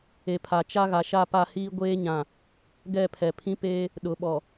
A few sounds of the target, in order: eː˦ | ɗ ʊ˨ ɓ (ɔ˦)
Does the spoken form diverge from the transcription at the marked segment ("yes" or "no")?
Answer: yes